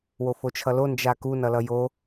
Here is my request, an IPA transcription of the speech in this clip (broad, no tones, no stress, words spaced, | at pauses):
wofot͡ʃʰʌlo nd͡ʒaku nʌlʌjo